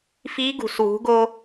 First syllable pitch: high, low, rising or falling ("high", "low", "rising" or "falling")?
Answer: rising